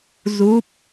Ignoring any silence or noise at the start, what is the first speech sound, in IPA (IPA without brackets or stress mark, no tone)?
z